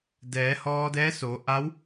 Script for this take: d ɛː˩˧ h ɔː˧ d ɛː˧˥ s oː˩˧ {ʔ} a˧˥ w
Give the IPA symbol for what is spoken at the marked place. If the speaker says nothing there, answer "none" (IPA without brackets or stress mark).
ʔ